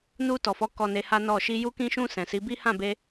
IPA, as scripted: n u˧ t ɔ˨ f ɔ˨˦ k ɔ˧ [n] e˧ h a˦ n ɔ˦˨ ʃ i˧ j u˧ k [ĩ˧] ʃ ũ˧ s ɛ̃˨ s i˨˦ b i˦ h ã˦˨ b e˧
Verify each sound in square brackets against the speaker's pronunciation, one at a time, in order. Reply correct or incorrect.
correct, correct

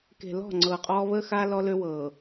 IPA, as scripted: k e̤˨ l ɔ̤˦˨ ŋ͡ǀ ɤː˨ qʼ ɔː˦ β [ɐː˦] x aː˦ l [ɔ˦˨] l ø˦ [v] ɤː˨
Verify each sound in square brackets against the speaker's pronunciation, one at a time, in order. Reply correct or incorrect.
incorrect: əː˦, incorrect: ɔ˦, incorrect: w

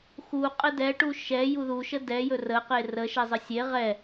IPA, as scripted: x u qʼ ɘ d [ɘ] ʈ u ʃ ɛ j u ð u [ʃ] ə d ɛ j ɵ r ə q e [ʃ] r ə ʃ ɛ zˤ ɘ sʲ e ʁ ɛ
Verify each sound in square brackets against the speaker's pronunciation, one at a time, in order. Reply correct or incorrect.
incorrect: ɛ, correct, incorrect: none

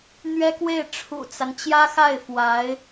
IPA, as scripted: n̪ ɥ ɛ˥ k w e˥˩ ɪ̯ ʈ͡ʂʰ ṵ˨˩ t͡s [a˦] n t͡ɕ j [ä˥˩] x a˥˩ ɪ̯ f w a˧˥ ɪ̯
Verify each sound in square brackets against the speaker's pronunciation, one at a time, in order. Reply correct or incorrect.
correct, incorrect: ä˥

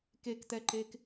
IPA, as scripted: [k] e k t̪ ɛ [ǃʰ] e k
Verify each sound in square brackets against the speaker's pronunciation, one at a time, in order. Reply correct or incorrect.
correct, incorrect: ǃ

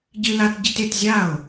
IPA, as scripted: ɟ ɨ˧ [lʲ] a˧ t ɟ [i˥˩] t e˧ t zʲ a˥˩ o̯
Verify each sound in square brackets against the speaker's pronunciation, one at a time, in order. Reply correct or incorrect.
incorrect: l, incorrect: i˧

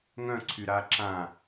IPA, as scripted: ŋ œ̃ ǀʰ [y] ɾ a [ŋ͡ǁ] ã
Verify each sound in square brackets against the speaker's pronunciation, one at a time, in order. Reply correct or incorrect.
correct, incorrect: ǁ

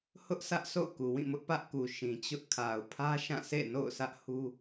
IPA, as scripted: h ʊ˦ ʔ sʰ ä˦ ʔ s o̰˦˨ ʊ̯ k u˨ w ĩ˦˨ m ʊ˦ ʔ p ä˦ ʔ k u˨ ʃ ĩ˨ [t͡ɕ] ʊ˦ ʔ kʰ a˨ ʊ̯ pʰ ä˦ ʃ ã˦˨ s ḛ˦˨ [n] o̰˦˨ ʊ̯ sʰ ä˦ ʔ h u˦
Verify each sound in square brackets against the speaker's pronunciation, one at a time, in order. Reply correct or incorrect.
correct, correct

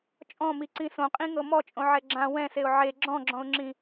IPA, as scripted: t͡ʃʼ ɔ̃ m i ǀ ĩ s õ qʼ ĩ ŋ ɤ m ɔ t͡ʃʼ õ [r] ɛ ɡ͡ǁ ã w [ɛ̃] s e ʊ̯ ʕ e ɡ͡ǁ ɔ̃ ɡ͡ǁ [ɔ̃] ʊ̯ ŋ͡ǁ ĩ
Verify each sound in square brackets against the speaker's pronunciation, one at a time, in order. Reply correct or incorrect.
incorrect: ʕ, correct, correct

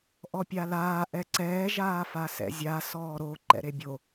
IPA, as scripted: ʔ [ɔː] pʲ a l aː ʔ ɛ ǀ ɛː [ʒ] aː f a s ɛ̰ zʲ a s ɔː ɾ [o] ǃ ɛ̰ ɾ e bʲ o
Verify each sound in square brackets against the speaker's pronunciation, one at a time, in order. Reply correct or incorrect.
incorrect: ɔ, correct, correct

